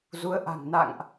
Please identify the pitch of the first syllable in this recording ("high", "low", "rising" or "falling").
rising